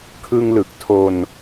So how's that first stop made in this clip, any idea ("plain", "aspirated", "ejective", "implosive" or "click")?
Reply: aspirated